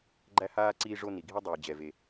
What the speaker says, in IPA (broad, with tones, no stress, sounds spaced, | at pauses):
ɡ͡ǃ æ˥ h aː˥ ǀ iː˦ ʐ o˦ n i˩ ɡʱ i˥ dˤ iː˩ d͡ʑ ɛ˩ v e˩